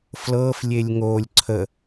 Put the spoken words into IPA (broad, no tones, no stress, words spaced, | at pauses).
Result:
flɤf lʲelʲŋolʲ ǀʰə